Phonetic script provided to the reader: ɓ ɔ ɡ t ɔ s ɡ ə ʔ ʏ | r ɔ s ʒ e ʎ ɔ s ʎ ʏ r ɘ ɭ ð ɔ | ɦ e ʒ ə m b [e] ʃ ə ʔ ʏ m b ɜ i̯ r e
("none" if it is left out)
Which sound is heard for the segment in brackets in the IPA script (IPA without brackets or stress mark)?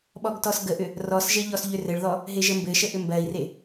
ɘ